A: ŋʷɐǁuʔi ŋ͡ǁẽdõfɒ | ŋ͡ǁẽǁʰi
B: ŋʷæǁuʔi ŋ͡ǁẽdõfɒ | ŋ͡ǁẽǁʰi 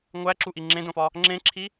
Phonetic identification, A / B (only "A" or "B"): B